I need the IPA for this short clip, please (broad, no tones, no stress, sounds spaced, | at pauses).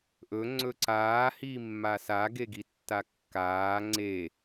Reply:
ʔ ɵ ŋ͡ǀ ɵ ǀ aː h iː mː a s a ɡ e ɡ i tː a kː aː ŋ͡ǀ e